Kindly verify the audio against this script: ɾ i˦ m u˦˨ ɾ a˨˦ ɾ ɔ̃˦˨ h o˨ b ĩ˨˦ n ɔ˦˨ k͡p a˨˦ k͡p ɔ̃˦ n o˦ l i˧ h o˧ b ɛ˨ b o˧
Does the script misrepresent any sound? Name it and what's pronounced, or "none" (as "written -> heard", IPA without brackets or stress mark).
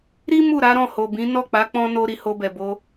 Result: l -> ɾ